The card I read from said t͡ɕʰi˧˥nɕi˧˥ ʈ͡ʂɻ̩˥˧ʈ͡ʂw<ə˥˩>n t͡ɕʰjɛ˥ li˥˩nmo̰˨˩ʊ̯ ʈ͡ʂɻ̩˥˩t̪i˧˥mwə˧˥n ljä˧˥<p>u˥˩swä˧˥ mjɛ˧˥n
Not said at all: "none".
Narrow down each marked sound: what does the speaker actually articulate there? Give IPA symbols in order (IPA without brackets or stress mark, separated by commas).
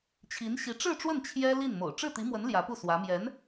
ə˥˩, p